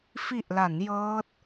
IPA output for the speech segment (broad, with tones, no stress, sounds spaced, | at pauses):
f i˨˩ ʔ l a˩˦ n j ɤː˦˥ t̚